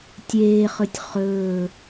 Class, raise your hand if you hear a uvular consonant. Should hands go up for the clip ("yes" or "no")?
yes